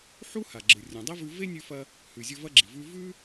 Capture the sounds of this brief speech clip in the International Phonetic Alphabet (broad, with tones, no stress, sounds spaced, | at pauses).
ħ u˦ h a˨ ɡ͡ǁ ɨ˨ rʲ õ˨ dˤ e˦ v ʉ˧ v e˦ nʲ ʉ˧ f ɐ˧ | h ʉ˨ zʲ ɵ˧ v ɐ˦ ɡ͡ǁ i˨ v ʉ˦ v ʉ˦